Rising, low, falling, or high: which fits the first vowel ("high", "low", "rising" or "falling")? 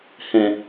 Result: low